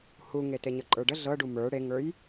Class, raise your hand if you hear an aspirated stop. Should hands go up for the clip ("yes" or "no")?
no